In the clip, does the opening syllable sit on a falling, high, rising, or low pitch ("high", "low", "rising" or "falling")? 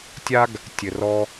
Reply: high